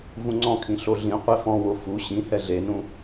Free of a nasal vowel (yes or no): no